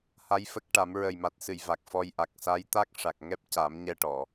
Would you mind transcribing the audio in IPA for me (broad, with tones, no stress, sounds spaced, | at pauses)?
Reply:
h a˧˥ j f ə˦˥ k̚ ʈ a˨˩˦ m ɹ ə˨˩ j m a˨˩ t̚ s ɨ˨˩˨ j v a˨˩ k̚ f ɔ˧ j ʔ a˨˩ k̚ s a˧˥ j t̪ a˦˥ k̚ ʂ a˨˩ k̚ ŋ ɛ˦˥ p̚ c a˨˩˦ m ɲ ɛ˧ ʈ ɔ˨˩˨